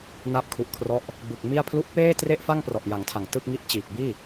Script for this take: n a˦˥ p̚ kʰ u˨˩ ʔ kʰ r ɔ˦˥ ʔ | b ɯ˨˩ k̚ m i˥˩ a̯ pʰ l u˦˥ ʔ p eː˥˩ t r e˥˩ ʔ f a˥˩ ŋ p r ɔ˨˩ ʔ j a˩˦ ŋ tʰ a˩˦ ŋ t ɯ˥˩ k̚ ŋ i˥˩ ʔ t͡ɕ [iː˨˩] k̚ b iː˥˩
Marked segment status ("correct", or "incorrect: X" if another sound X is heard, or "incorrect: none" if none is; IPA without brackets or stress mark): correct